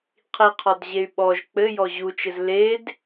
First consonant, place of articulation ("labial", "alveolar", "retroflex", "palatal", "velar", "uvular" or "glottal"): uvular